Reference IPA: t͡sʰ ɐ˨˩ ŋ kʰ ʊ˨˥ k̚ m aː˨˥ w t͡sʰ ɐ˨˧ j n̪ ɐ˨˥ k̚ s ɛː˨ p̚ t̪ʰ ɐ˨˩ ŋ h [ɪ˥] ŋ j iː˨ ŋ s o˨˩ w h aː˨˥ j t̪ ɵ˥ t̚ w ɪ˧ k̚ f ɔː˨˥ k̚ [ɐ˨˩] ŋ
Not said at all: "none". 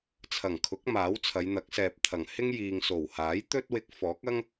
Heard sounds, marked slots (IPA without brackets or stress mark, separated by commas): ɪ˥, ɐ˥